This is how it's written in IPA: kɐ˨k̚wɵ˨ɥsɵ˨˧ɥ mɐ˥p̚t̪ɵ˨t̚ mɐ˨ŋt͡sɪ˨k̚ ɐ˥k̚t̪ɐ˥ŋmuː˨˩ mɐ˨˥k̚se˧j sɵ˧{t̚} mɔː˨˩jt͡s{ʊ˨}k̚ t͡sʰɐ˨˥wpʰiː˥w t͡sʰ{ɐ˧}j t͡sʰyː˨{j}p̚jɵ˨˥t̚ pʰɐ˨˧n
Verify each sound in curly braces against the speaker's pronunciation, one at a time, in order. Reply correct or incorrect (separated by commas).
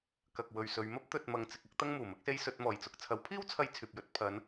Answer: correct, incorrect, correct, incorrect